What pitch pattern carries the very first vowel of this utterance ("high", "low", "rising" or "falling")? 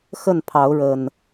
falling